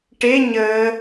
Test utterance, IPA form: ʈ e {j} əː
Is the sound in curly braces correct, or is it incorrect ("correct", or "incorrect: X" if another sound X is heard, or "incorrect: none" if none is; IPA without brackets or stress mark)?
incorrect: ɲ